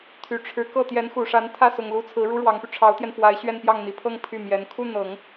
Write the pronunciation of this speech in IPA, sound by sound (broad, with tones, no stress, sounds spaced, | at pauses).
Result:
t̪ʰ y˨˩ ʈ͡ʂʰ ɻ̩˧˥ k ɤ˥˩ t̪ j ɛ˧˥ n x u˨˩ ʂ a˧˥ n t̪ʰ ä˥˩ s ʊ˨˩ ŋ l u˧˥ t͡sʰ ɹ̩˧˥ ɻ u˥ ɻ w ɑ˧˥ ŋ p y˧ ʈ͡ʂʰ ɑ˧˥ ʊ̯ t̪ j ɛ˧ n f w a˧˥ ɪ̯ ɕ ɥ ɛ˥˧ n p j ɑ˥˩ ŋ n̪ i˧˥ pʰ ɤ˥ ŋ pʰ y˥˩ m j ɛ˧˥ n kʰ u˥˩ n̪ ɤ˨˩˦ ŋ